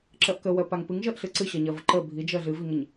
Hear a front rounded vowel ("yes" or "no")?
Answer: no